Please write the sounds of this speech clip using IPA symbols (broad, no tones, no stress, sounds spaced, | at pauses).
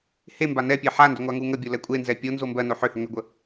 h e m b a n ɛ pʲ e ħ a n d ʏ ŋʷ a ŋ u ŋ ə bʲ o l ɛ kʷʼ e n z ɛ pʲ o n z o m b ɜ n o ħ ʏ h ʏ ŋ ʏ ɡʷ ə